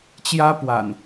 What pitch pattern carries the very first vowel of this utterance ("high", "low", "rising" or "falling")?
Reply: high